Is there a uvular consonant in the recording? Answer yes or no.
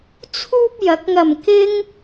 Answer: no